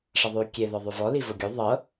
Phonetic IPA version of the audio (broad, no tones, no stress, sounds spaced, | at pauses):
ʂ ɐ ðˤ ʉː kʲ e ð ɔ ðˤ ʉ v ɔ l i v o ɡʲ ʉ ðˤ ɤ